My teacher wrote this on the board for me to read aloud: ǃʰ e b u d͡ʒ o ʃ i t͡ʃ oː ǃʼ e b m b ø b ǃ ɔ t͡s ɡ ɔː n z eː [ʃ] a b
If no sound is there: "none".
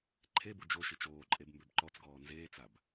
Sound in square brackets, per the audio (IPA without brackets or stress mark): t͡s